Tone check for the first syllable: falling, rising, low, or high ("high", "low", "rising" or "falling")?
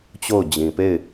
falling